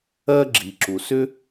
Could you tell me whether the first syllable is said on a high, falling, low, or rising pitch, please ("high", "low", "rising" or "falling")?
high